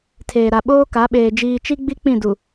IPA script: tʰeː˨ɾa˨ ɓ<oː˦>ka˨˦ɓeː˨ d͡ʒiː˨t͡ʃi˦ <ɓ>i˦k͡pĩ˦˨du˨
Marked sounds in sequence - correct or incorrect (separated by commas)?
correct, incorrect